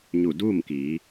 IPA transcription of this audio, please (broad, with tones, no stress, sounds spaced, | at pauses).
ɲ u˧˩ d uː˥˨ m k iː˩˧